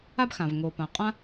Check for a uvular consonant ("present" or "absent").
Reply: present